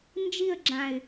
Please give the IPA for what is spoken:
n d͡ʒ i ə̯ ɡ͡ǁ ã ɪ̯

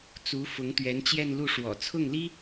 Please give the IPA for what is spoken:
t͡s u˧˥ f ʊ˧˥ ŋ t̪ ɥ ɛ˧˥ n t͡ɕ j ɛ˥˧ n l u˥˩ ʂ w ɔ̰˨˩ t͡sʰ ʊ˥˩ ŋ l i˥

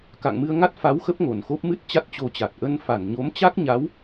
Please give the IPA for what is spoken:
k a̰˧˨ ŋ m ɨ˧ ə̯ ŋ a˦˥ t̚ f a˨˦ w x ə˦˥ p̚ ŋ o˧˩ n x o˦˥ p̚ m ɨ˦˥ t̚ t͡ɕ a˦˥ t̚ t͡ɕ o˧ t͡ɕ a˨˩ t̚ ʔ ə˧ n f a˧˩ n ɲ o˨˦ m t͡ɕ a˦˥ k̚ ɲ a˨˦ w

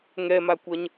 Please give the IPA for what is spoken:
ŋ ɛ m a kʷ ɐ ɲ

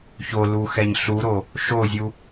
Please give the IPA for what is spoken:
ç o l u x ɛ ɲ ɬ u ɾ o | ʃ o zʲ u

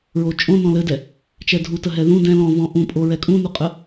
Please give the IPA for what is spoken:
ɹ o t͡ʃʼ õ n ɔ̃ l ɘ d ɛ | t͡ʃ ɛ dʱ u t ə ɦ ɛ ð ũ d ɛ̃ l ɔ̃ v ɔ̃ ʔ ũ pʼ o ɹ ɛ kʼ ũ n u qʼ ə

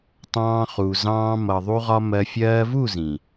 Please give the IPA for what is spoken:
tˤ ɑ̃ː˧ χ u˨ z ɑ̃ː˧ m ʌ˨ ðˤ u˧ ʁ ɒ˧ m ɜ˧ fʲ ɜː˧ v u˦˨ z ĩ˨

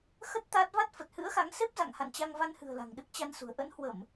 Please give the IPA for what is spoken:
x ə˦˥ t̚ t̪ a˦˥ t̚ v a˦˥ t̚ f ə˨˩ t̚ h ɨ̰˧˥ ə̯ x a˨˦ ŋ s e˦˥ p̚ z a̰˧˨ ŋ h a̰˧˨ n t͡ɕ a˧ ŋ v a˧ n h ɨ̤˨˩ ə̯ l a̤˨˩ ŋ ɗ ɨ˦˥ k̚ t͡ɕ a˧ n s ṳ˨˩ ə̯ ʔ ə̰˧˥ n h w ə˧˩˨ m

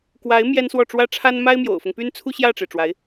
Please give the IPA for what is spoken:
k w a˧˥ ɪ̯ m j ɛ˥ n s w ɔ˥˩ ʈ͡ʂ w ä˥ ʈ͡ʂʰ a˥ n m a˥ ɪ̯ m j o̰˨˩ ʊ̯ f ʊ˦ ŋ p y˥ n t͡sʰ u˥ ɕ j ä˥˩ ʈ͡ʂ e˩ ɪ̯ ʈ͡ʂ w a˧˥ ɪ̯

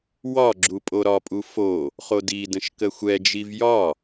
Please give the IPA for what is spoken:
w ɒ ɡ͡ǁ u pʼ o ɾ ɒ pʼ u f o | χ o d i d ə̃ ʃ k ə xʷ ɛ d͡ʒ i v j ɒ

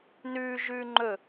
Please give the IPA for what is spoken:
n ʉː ʒ ʉː ŋ͡ǃ ɵ

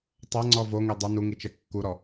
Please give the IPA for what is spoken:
tˤ a ŋ͡ǀ ɔ v o ŋ i dˤ ʊ n u ŋ i t͡ʃ ɛ kː u ɾ ɔ

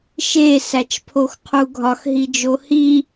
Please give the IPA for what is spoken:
ʃ e s æ t͡ʃ pʰ o x qʰ u ɡʱ ɒ x ɦ i d͡ʒ o h i

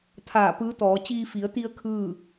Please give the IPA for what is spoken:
t̪ʰ aː˧˩ p ɯː˧˥ t̪ ɔː˩˧ t͡ɕ iː˧ f i˩˧ ə̯ t̪ i˧ ə̯ kʰ ɯː˥˨

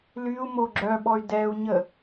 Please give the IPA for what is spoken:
l y u̯ m o ɡ͡ǁ œ ɓ ɔ y̯ d ɛ u̯ ɲ ə

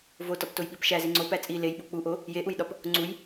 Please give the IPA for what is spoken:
v o t ɒ p t o j ɓ i p ʃ æ z i ŋ͡ǀ o p æ t͡sʼ i l e j ɓ o k͡p u ʔ o | j e ʔ u j ɗ ɒ p | ŋ͡ǀ u j

